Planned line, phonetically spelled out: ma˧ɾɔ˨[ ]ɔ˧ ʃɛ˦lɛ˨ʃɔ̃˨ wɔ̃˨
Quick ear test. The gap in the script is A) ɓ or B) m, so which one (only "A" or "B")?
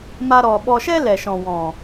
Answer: A